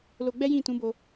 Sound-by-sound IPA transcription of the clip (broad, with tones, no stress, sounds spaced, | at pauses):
l o˧ ɡ͡b ɛ˦ j ĩ˦˨ t ũ˨˦ b o˧